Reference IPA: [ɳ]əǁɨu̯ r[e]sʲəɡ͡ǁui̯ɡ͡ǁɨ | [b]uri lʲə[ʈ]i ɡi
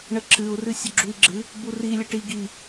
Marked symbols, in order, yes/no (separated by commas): yes, no, yes, yes